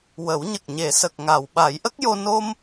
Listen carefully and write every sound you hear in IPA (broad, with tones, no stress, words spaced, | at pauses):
wə˨˩˦wɲə˨˩k̚ ɲe˨˩˨sə˨˩k̚ŋa˨˩˨w ɓa˨˩˦jʔə˦˥k̚jo˧ no˧m